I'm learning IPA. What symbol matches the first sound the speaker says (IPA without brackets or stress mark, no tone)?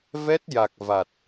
v